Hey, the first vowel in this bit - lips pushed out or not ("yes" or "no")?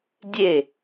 no